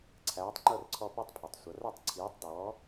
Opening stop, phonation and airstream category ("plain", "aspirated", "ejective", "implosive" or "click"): click